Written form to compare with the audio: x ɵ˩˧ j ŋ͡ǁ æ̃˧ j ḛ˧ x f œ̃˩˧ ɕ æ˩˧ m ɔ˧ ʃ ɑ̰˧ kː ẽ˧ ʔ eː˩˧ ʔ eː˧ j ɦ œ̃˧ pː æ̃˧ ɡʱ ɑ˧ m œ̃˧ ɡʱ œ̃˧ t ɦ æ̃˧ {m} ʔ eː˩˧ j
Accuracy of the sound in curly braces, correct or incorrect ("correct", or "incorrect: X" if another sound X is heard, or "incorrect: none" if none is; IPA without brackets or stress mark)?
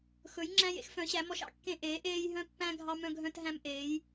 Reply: correct